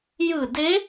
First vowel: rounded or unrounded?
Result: unrounded